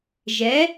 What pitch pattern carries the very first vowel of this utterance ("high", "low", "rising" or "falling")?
rising